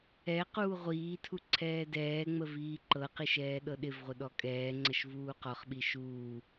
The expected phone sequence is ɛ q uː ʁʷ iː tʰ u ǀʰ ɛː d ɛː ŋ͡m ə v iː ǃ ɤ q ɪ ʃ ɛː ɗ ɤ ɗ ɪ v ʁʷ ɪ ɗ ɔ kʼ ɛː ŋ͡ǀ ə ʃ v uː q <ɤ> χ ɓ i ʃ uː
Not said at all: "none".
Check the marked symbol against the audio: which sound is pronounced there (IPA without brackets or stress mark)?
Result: ɔ